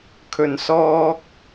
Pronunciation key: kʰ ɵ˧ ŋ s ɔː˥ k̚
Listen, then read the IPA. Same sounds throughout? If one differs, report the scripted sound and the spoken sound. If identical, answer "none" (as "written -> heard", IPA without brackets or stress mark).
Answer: ŋ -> n